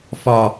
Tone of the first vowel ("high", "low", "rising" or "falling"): low